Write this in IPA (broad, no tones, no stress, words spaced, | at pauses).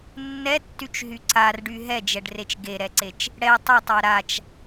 nːɛtːyt͡ʃɦy ǀarɖy ɦɛd͡ʒɛɖret͡ʃ ɡeɾɛǀet͡ʃ | ɽɛ tˤɛtˤa ɾat͡ʃ